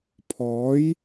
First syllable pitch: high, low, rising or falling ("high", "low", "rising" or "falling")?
rising